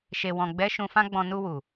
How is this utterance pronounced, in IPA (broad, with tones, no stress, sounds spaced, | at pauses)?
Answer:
ʃ e˨ w ɔ̃˨ ɡ͡b ɛ˨˦ ʃ ũ˧ f ã˦ ɡ͡b ɔ̃˧ n u˧ w u˨